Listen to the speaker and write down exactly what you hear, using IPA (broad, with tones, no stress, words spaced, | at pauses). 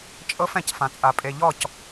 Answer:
t͡ʃʼɤ˦f ɛ̃˨cfã˨t͡sʼa˨ pʼe˨ʎɔ˦˨c